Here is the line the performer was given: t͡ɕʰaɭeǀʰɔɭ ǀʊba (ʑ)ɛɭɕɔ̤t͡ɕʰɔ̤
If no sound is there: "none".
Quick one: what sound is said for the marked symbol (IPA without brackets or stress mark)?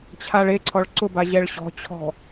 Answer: ʑ